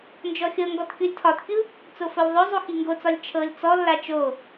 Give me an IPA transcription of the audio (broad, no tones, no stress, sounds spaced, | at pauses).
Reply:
n d͡ʒ ɔ xʲ ɤ ŋ ɡ ɔ t kʲ o lʲ tʰ ɒ t kʲ u | t͡s o f o lʲ ðˤ o zˤ u x i ŋ ɡ o t͡s ɒ lʲ t͡ʃʰ ɤ lʲ t͡s ɔ lː a t͡ʃ o